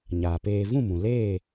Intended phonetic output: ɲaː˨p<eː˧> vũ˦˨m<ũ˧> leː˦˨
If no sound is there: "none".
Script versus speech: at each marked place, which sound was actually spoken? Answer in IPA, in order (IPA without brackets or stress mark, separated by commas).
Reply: eː˧, ũ˨